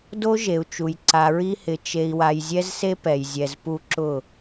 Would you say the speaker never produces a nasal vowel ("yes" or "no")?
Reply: yes